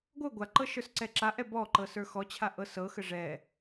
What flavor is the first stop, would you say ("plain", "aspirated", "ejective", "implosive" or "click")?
plain